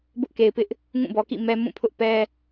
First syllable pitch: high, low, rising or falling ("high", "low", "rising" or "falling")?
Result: high